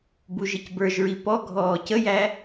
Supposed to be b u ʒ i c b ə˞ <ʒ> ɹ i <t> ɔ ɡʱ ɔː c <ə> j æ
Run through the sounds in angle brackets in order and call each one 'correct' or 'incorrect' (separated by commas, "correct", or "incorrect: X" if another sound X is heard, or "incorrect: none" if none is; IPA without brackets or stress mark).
correct, incorrect: p, correct